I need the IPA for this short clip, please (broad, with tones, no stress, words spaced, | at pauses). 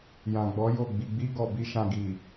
jã˨ɡ͡bɔ˨˦ jo˦˨ ɡ͡bi˨ɡ͡bi˧ ɡɔ˨bi˧ ʃã˨ ɡi˨